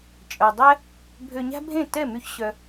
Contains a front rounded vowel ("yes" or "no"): yes